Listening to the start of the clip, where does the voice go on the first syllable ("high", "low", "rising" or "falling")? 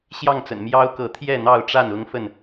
falling